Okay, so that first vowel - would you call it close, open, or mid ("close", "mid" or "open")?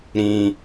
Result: close